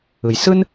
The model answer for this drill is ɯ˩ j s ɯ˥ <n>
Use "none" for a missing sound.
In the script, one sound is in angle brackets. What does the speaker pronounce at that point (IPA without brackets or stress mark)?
n